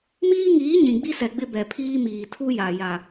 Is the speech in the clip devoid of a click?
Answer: yes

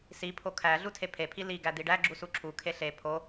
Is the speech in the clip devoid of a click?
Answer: no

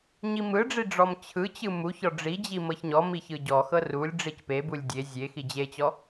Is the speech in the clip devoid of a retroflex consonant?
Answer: no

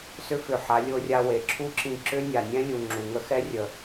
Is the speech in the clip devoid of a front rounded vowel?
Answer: no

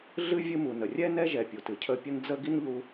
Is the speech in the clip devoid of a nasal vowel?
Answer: yes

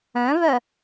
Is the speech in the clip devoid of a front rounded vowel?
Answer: no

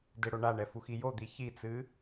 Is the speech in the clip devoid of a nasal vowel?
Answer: yes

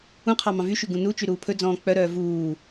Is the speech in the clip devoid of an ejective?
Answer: yes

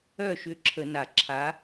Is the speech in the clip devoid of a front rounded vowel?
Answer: no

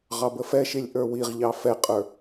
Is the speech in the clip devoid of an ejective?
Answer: no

